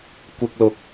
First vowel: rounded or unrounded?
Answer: unrounded